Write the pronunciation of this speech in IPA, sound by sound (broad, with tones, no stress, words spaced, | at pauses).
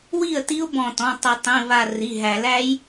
wi˥˩ə̯ ti˦˥ʊ̯bɔ̃˧˩tɔ̃˩˧˩ tˤɪ˨˩˦tˤĩ˩˧˩ βa˧˩ ri˩˧˩ɦæ˨˩˦læ˦˥j